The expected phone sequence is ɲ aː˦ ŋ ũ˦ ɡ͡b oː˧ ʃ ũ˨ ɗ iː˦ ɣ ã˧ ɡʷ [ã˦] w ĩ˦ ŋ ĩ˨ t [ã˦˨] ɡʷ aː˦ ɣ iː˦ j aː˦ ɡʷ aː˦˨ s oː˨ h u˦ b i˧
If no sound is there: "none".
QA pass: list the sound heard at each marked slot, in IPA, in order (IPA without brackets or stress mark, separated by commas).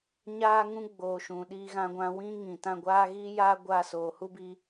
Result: ã˧, ã˦˨